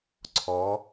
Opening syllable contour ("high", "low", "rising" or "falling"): rising